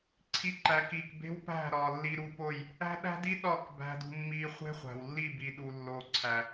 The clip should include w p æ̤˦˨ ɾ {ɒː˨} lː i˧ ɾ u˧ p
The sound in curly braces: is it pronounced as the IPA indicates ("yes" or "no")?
yes